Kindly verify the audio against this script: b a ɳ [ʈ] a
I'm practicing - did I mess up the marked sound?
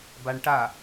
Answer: no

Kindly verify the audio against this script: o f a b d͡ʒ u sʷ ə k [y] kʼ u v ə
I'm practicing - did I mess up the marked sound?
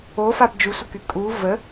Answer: no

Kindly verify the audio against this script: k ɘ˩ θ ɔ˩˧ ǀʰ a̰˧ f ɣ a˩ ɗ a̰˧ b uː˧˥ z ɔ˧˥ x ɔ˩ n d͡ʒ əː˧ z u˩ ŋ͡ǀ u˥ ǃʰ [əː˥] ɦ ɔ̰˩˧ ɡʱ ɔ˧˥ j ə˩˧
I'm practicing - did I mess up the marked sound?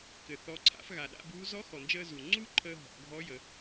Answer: yes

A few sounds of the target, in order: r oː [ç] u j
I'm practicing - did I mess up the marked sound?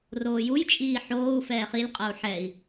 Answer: yes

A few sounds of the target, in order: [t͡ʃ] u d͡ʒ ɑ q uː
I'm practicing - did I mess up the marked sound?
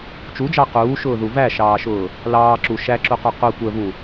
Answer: no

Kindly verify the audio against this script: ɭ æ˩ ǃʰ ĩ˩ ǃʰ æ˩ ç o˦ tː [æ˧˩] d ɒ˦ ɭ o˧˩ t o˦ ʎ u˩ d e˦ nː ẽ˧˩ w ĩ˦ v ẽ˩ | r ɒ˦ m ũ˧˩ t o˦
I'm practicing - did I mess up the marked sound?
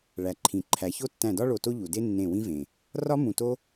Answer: yes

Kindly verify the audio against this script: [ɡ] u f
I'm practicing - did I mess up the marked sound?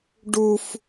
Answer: yes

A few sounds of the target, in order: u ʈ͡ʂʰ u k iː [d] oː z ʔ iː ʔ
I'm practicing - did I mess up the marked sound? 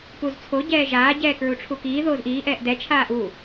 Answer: yes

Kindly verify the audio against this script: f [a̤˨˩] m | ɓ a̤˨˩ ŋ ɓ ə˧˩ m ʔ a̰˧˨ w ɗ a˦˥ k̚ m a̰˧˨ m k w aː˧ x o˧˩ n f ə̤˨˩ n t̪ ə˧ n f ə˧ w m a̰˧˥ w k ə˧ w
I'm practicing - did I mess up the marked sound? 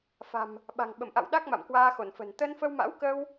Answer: no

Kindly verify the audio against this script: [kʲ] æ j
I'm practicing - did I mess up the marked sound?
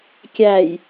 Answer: no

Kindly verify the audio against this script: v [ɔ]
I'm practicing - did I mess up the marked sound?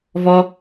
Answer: no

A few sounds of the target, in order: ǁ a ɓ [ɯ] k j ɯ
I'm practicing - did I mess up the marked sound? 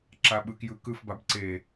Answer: no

